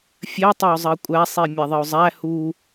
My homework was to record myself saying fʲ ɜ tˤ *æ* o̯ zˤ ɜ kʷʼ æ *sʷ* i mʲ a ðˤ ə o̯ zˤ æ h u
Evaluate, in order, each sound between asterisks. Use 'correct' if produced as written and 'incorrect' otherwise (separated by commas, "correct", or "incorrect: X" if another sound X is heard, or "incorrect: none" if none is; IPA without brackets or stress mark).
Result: incorrect: ɜ, incorrect: sˤ